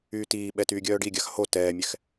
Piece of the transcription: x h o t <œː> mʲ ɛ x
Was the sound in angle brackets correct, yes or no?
no